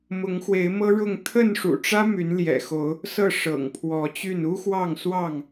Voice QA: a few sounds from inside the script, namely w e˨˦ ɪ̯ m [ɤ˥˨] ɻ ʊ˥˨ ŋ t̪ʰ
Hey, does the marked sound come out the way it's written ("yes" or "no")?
no